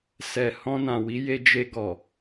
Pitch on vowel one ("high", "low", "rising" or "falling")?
low